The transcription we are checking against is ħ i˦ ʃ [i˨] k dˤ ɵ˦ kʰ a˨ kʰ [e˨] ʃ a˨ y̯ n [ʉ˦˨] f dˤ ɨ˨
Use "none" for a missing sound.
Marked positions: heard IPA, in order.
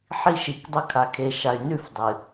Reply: i˨, e˨, ʉ˦˨

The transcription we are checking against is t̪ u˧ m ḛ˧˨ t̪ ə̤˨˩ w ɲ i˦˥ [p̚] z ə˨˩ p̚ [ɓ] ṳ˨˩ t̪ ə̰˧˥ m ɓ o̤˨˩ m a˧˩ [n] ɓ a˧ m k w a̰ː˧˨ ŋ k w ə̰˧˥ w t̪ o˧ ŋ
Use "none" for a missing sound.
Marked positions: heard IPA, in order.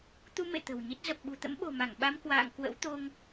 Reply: t̚, ɓ, ŋ

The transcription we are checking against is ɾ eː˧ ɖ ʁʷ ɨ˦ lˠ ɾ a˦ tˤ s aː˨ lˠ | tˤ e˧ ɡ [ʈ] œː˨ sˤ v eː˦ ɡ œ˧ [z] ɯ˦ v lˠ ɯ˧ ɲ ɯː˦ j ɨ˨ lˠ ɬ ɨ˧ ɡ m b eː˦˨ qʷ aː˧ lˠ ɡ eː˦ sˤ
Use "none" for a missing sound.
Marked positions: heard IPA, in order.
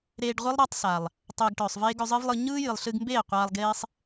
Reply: ʈ, zˤ

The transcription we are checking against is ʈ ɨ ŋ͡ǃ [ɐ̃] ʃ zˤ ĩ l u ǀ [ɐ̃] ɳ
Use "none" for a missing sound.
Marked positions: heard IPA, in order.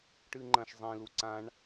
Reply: ɐ̃, ã

